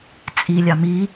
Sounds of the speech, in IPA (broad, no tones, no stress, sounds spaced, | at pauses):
t͡sʼ i lʲ ɑ m i